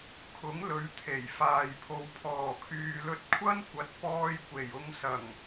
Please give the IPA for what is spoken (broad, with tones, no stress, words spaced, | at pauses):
kʰʊ˨˥ŋlɵ˨˧ɥ t̪ʰe˨˩j faː˨jpʰo˨˧w pʰɔː˨˩kʰyː˨lɵ˧t̚kʷʰɐ˥n kʷɐ˨˥t̚pɔː˧jkʷe˨˩j ʊ˧ŋsɐ˨˩ŋ